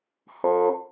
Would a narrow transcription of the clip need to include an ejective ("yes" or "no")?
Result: no